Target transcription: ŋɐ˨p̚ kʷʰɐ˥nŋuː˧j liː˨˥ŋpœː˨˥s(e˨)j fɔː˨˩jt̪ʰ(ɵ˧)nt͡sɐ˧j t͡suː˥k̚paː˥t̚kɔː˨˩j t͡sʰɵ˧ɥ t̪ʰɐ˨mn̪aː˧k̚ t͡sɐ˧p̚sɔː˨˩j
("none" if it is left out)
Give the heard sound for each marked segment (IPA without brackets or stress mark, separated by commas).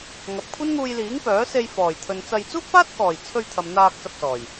e˧, ɵ˨